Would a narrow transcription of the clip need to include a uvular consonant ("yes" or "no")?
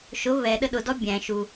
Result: no